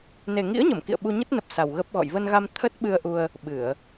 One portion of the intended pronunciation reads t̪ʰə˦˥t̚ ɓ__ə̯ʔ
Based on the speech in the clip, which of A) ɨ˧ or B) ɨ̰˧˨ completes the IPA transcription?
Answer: A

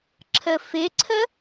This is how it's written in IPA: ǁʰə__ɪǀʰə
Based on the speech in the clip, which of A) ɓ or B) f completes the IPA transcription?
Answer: B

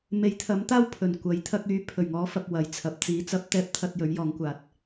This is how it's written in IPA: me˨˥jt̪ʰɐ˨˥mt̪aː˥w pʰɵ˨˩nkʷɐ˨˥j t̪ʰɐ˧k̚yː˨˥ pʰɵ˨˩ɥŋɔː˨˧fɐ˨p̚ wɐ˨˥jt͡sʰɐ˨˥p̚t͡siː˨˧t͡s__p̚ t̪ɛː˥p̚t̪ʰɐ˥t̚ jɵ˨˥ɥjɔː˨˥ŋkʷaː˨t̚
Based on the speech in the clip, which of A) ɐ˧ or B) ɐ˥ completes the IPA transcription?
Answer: B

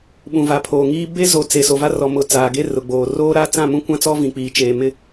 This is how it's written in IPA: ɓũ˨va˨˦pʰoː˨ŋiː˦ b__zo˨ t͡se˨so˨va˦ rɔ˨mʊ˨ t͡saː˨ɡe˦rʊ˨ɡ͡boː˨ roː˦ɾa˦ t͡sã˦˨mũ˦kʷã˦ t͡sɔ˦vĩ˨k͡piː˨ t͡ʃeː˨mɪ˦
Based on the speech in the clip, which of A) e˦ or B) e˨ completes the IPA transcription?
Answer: A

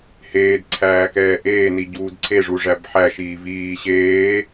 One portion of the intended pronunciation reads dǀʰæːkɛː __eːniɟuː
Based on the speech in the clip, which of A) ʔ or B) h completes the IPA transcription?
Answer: A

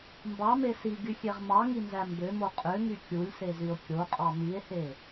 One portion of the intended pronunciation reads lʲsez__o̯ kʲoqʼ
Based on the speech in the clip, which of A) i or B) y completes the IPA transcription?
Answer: B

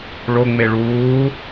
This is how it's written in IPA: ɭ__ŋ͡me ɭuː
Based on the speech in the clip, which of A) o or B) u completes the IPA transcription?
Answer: A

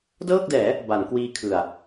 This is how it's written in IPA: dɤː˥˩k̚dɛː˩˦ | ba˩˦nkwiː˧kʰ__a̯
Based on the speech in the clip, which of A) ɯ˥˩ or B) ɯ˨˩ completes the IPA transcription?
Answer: B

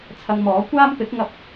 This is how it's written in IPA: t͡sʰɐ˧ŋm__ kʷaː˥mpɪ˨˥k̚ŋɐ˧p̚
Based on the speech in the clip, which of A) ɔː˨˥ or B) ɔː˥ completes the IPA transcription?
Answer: A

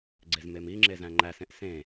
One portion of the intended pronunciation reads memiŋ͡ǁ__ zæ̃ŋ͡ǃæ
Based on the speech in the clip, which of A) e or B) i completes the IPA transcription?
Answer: A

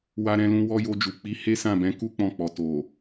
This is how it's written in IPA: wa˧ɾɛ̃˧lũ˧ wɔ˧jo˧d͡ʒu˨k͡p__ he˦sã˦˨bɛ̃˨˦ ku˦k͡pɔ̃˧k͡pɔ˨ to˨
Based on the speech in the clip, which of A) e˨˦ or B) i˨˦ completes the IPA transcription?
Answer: B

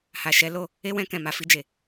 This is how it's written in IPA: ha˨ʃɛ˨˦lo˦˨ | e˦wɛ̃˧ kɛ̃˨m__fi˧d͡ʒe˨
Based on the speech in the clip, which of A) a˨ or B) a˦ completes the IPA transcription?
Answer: A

